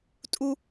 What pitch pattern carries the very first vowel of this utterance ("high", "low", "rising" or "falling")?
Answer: high